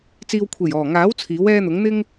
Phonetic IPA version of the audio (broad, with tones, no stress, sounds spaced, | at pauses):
t͡s iː˧ w kʷʰ e˨˩ j ɔː˨˩ ŋ aː˨˥ w t͡sʰ iː˨˥ w ɛː˥ n̪ ʊ˨˥ ŋ n̪ ɪ˥ ŋ